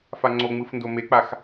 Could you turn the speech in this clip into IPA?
f a ŋ͡ǀ o ŋ͡m ɯ f n d o m e k͡p a x

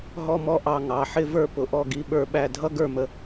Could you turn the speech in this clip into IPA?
ɦ ɔ˥ m ɔ˥ ʔ ɑ˦˨ ŋ ɑ˩˧˩ ħ ɪ˥ v ə˞˥ p ʊ˨˦ ʔ ɔ˦˨ ɡ i˨˦ ɓ ə˞˦˨ ɓ æ˦˨ dʱ ʌ˥ ɡ ə˞˦˨ m ə˨˦

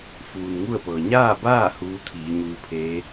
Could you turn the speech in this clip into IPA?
f uː˩ n ŋ u˥˨ ə̯ p ɤː˩ ɲ aː˥˨ b aː˥˨ h uː˧˥ t̪ʰ iː˩˧ ɲ uː˧ pʰ eː˧˥

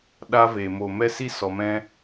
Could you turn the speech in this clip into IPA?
ɗ a˦ v e˨ m o˨ m ɛ˦ s i˦ s ɔ˨ m ɛ̃˦

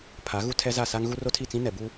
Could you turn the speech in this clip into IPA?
pʰ a˨˦ ɣ u˦ tʰ ɛ˦ z a˦˨ s a˦ ŋ ɣ u˦ r o˦ tʰ i˦˨ t͡s ĩ˦ n ɛ˨ b u˦

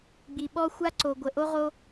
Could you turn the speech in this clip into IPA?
ɡ͡b i˧ ɓ ɔ˦ xʷ a˦ ǀ o˧ ɡʷ ə˧ ʔ o˦ ʁ o˦

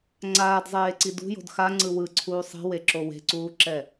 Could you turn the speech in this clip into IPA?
ŋ͡ǀ aː d zˤ eː ǀ i d ṳ j o̤ d x a ŋ͡ǀ ɯ w ɯ ǀʰ uː sˤ i̤ w e ǁ o w e̤ ǀ uː ǁ ɛ

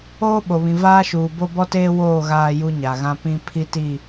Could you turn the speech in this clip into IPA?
oː˦ ɓ o˨ β ĩ˨ v aː˦ ʃ uː˨ b o˦ b ɔ˦ t eː˦ w oː˦˨ ɣ aː˦ j u˦ ɲ a˨ ɣ ã˦ p ĩ˦ pʰ i˦ t i˦˨

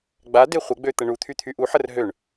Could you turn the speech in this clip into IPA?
ɡ͡b a d e χʷ ə ɡ͡b ø t̪ ə ɳ u t̪ʰ y t̪ʰ y ʔ u ħ ə r ɦ ø ɳ

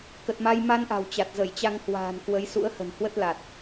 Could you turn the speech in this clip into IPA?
k ə˨˩ t̚ m a˧ j m a˧ n ʔ a̤˨˩ w t͡ɕ a˨˩ t̚ z ə˧˩ j t͡ɕ a˧ ŋ h w a̤ː˨˩ n k w ə˨˦ j s ṵ˧˥ ə̯ h ə̤˨˩ n h w ə˦˥ t̚ l a˨˩ t̚

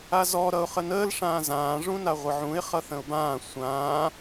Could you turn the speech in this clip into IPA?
a z ɔ ɾ ʌ ʊ̯ χ ə n əː l ʂ ãː z ãː ʐ ũ n a ʁʷ ə ʕ ũ ɪ̯ χ ʌ θ ə̃ ʊ̯ b ãː sʷ ãː

